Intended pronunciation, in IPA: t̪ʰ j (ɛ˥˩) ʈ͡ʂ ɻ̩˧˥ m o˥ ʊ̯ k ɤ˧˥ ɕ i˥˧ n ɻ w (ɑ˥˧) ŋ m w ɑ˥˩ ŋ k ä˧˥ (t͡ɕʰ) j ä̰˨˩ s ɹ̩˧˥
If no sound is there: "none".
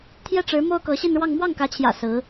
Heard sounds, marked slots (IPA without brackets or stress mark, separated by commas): ɛ˥˩, ɑ˥˧, t͡ɕʰ